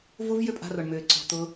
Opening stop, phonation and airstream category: ejective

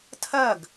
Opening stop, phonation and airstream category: aspirated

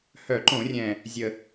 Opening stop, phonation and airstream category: click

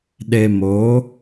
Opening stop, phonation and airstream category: implosive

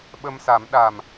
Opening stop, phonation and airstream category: implosive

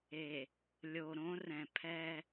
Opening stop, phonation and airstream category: aspirated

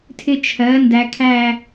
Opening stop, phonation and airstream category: aspirated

